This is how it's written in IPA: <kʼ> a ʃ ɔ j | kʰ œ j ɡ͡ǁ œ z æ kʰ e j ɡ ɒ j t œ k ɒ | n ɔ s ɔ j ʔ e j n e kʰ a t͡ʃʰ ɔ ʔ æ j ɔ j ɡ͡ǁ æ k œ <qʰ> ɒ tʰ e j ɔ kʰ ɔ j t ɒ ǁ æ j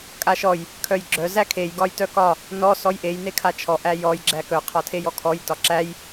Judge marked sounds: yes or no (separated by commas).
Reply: yes, yes